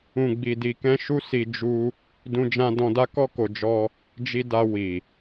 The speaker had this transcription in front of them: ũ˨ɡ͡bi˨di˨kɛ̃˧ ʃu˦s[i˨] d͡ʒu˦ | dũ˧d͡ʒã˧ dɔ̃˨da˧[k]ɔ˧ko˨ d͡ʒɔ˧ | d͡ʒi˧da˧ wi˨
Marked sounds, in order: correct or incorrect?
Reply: incorrect: i˧, correct

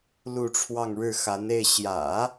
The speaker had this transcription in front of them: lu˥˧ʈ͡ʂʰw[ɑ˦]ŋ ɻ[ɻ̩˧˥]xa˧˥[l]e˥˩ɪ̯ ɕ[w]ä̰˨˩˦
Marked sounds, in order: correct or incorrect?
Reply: incorrect: ɑ˥˧, incorrect: ɻ̩˥˩, incorrect: n, incorrect: j

